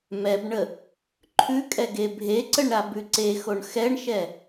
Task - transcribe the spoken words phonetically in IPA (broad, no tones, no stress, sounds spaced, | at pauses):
m ɛ b ɳ ə | ǃʰ ʉ kʼ ɛ ɡ e bʱ e ǀ ə ɳ ɾ a b ʉ ǀ e x o ɳ x ɛ ɳ ʃ ɛ